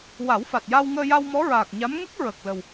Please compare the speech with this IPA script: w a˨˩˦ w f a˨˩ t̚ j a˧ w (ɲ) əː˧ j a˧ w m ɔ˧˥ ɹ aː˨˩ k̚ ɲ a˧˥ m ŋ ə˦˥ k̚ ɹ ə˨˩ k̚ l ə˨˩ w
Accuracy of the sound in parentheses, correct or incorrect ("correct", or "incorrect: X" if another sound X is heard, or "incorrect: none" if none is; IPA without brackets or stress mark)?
incorrect: ŋ